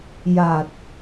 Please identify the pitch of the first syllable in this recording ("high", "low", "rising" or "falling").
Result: low